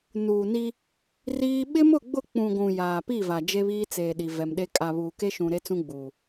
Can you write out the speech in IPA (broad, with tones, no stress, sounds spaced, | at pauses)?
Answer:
n uː˨ n i˦ | r iː˦ ɓ ɪ˦ m ʊ˦˨ ɡ͡b ʊ˦˨ k͡p ũ˨ ɡʷ ũ˨ j aː˨ p i˦˨ v a˨ d͡ʒ e˦ β iː˦ t͡s eː˨ ɗ i˨ v ɛ˨ m ɗ e˦ kʼ a˨ β uː˨ k e˦ ʃ ũ˨ ɾ e˦ t͡s ũ˦ ɡ͡b uː˨